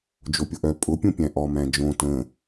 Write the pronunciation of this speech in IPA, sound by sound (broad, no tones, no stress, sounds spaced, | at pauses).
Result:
d͡ʒ o pʲ ʊ ʔ œ pʼ ʊ pʲ ũ pʲ æ̃ ʔ ɔ m æ̃ d͡ʒ õ t ə̃